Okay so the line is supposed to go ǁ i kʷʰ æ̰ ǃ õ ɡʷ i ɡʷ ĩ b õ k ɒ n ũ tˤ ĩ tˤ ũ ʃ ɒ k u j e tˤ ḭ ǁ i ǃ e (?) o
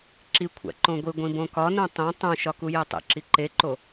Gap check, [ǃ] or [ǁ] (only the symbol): ǃ